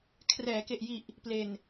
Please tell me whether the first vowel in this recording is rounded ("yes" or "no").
no